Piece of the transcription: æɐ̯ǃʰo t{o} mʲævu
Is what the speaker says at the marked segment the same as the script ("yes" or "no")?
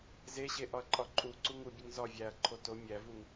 yes